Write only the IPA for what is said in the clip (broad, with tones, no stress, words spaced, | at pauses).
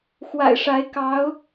xwa̰˨˩ɪ̯ʂa˧˥ɪ̯ kɑ˧˥ʊ̯